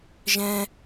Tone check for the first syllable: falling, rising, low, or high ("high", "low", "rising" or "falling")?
high